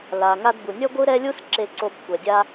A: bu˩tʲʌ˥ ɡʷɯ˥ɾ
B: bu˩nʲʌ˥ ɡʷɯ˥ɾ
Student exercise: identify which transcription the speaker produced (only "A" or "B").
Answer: B